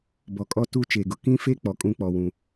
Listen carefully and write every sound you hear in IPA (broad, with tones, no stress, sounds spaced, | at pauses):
b ɔ˨ kʼ ɔ˦ t u˦ t͡ʃ e˨ ɡ ʊ˨ k ĩ˦ f e˦ k͡p ɔ˨ kʼ ũ˦ k͡p ɔ˨ w ũ˨